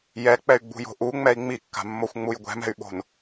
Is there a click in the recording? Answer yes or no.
no